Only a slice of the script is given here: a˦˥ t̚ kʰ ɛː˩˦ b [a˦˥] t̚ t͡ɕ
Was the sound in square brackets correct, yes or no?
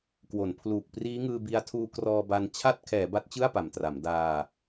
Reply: yes